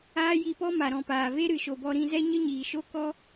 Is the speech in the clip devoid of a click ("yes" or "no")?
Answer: yes